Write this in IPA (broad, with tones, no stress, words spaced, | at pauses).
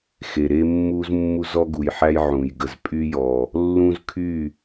xe˨ɾe˦ mːu˦z mːu˦zɔ˦ɡu˨jħæ˦j ʕũ˨jɡə˨z pʼy˦jɔ˨ | lːũ˦zkʰy˦˨